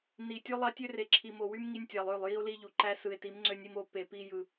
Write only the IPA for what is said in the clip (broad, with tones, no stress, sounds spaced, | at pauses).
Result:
n i˨ tʲ o˦ lˠ ɑ˦ tʲ ø˦ r e˨ ǁʰ i˨ m o˨ w y˦ m ŋ i˦ nʲ tʲ ɑ˨ lˠ ø˦˨ lˠ j i˦ o̯ l i˦ ʎ u˨ ǃ æ˦ s ɯ˨ e̯ t i˨˦ m ŋ͡ǀ ø˦ nʲ i˦ m o˦ p e˨ p i˦ j ɯ˨